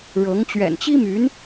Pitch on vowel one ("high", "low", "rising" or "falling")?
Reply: rising